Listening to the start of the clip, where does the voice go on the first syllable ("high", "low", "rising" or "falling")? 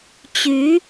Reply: rising